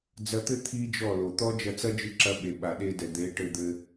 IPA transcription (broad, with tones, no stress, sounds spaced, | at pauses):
d͡z ɐ˧ t̪ ɘ˦ t̪ʰ i˦ d͡ʒ ɔ˦˨ l o˨ t̪ ɔ˦ d͡ʒ ɐ˧ t͡s ɐ˦ d͡ʒ ɨ˧ ǁ ɐ˧ ɓ e˨ ɓ a˨ ɗ e˧ d ɛ˨ d̪ e˨˦ ʈ ɘ˧ d̪ ɘ˧